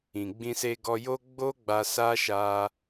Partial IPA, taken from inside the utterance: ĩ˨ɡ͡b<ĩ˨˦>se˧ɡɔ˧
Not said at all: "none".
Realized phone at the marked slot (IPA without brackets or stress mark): ĩ˧